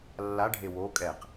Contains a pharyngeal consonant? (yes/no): no